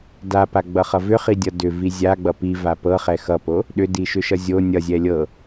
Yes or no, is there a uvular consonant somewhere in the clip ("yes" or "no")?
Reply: yes